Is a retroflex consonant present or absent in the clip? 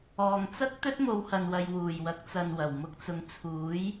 absent